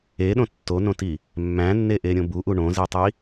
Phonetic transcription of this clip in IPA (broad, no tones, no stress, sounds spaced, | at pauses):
e ɗ õ tː o n õ t i | mː æ̃ nː e ʔ e ɾʲ õ b u ʔ u ɳ õ z i tˤ i